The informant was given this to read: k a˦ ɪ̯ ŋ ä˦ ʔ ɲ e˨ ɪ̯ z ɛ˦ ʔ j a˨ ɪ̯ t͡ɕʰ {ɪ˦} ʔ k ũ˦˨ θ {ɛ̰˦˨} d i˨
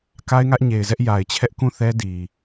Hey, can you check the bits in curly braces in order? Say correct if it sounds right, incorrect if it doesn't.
incorrect: ɛ˦, incorrect: ɛ˦

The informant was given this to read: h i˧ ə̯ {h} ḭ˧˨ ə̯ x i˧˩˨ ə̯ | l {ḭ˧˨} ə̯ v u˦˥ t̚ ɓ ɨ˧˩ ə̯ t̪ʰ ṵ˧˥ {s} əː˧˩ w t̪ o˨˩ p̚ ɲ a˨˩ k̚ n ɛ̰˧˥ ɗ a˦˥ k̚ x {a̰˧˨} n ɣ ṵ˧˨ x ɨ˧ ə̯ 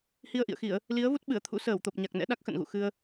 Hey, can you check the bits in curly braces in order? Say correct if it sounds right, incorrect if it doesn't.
incorrect: ʔ, incorrect: i˨˦, correct, incorrect: ə̰˧˨

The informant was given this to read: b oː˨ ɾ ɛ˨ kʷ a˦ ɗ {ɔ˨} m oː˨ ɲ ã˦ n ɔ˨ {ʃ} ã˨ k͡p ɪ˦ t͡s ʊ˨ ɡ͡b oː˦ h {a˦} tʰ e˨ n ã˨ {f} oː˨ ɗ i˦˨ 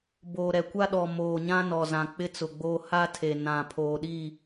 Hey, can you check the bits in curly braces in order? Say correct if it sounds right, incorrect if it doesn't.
correct, incorrect: z, correct, incorrect: pʰ

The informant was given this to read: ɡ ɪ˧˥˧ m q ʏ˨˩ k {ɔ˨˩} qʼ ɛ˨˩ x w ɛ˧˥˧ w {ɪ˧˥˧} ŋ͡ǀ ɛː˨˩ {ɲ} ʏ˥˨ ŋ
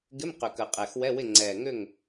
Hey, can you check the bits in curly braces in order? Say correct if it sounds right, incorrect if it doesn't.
incorrect: ə˨˩, incorrect: ɪ˥˨, incorrect: ŋ

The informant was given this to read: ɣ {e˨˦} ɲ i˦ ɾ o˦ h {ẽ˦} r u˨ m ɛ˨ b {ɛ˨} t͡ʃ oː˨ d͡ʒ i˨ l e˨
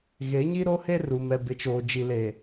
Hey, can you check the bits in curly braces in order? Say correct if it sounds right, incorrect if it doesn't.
correct, incorrect: e˦, incorrect: ɪ˨

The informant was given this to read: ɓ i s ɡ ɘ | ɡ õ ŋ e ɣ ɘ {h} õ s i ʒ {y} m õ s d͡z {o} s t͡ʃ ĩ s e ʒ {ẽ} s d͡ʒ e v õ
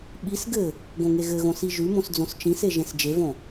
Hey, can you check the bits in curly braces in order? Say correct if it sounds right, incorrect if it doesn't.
incorrect: ɣ, correct, incorrect: õ, correct

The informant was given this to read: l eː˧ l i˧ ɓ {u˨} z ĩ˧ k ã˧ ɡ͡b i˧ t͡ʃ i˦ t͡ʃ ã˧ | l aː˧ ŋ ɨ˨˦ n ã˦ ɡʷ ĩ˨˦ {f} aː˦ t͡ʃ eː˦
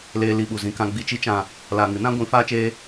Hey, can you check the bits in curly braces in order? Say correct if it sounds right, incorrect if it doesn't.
correct, correct

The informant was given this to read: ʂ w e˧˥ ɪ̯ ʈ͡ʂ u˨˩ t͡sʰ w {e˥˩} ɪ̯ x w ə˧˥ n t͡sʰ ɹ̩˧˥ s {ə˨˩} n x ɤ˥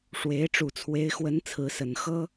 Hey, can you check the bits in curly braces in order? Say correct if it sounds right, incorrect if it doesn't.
incorrect: e˧˥, correct

